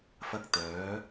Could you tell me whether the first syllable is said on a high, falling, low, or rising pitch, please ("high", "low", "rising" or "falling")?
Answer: high